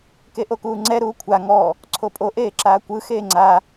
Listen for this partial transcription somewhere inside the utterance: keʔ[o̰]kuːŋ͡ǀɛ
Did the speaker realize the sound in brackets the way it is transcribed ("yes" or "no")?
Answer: no